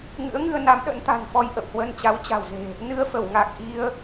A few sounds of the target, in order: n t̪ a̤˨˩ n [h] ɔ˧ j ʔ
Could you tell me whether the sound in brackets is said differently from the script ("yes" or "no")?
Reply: yes